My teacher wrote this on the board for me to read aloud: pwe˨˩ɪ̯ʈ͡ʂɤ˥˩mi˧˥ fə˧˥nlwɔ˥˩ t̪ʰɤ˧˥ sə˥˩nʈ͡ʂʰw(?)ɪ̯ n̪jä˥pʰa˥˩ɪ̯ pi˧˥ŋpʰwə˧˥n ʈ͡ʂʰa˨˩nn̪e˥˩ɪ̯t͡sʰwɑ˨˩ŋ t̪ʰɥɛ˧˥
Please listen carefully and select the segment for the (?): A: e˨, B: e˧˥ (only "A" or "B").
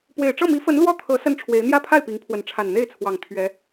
B